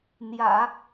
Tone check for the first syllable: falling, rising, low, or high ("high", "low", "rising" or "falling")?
low